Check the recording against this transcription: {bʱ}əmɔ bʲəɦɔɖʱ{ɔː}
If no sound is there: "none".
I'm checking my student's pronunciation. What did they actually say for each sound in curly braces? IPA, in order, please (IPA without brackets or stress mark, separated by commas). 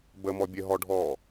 b, ɔː